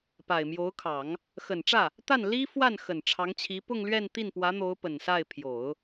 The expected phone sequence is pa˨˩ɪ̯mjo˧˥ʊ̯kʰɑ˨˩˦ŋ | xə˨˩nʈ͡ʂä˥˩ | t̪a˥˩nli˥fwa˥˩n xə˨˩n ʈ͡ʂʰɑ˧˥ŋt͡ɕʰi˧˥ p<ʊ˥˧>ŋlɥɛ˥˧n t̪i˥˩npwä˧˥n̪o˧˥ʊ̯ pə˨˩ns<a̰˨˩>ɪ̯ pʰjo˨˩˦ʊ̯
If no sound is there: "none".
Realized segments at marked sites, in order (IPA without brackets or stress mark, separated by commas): ʊ˥˧, a˥˩